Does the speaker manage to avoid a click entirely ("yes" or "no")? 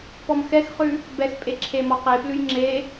no